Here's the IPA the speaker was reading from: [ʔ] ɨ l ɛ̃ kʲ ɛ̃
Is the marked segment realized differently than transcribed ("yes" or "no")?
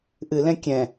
no